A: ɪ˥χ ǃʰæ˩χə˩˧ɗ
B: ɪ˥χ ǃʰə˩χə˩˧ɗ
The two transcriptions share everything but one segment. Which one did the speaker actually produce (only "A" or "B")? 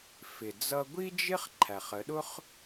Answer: A